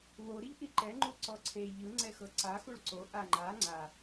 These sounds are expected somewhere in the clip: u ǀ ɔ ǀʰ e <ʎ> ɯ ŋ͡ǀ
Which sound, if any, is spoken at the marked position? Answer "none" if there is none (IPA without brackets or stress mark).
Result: ʎ